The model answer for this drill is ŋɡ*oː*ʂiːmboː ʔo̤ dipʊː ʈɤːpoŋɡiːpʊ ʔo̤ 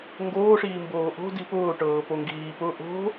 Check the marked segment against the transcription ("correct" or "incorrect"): correct